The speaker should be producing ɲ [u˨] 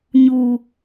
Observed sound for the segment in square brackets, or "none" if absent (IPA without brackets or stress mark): u˨